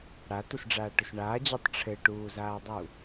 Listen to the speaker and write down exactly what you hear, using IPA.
ɽ a t u s ɖ͡ʐ aː ʈ ɵ s ɳ aː d͡ʑ a tˤ ʈ͡ʂʰ ɘ ʈ uː z aː dˤ u

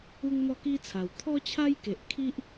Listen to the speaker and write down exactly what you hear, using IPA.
u˦ ŋ n̪ ɔ˥˧ k i˦ t͡sʰ a˨˩ w t̪ʰ ɔ˦ t͡ɕʰ a˦ j k e˨ ʔ kʰ i˦ ʔ

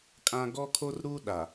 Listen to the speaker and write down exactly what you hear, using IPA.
kʼ ã˦ ɡ ɔ˦ kʰ o˦ r ɾ u˦ ɗ a˨

